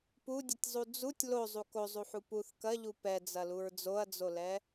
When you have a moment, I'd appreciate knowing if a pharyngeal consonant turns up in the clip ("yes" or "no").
yes